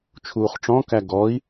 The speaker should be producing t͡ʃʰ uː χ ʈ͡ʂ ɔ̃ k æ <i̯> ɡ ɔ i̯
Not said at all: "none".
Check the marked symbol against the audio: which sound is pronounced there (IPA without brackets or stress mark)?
none